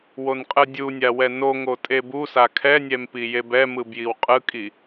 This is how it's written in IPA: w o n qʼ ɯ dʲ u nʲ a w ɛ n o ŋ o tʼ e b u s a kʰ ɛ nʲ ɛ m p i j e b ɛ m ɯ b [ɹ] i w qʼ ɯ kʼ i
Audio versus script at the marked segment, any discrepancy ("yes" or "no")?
yes